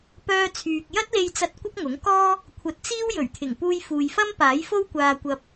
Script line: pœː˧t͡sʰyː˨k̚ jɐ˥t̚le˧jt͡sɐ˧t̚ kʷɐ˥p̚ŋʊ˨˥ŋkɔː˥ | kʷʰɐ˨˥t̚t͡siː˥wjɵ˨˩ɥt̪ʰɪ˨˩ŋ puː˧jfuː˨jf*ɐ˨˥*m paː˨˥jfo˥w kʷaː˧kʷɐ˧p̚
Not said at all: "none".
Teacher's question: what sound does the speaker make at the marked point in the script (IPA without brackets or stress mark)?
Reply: ɐ˥